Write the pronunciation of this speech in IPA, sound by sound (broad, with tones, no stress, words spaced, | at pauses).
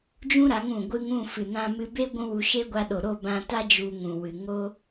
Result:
d͡ʒũ˦ɾa˨˦ŋ ũ˨ɡʷɨ˧ŋ ũ˦˨fɨ˨nã˧mɨ˧ be˦ɡʷũ˧ wu˧ʃe˦ɡʷa˧ ɗo˨ ɾo˦˨bã˧ta˦ d͡ʒu˧ŋũ˨wɨ˨ ŋo˦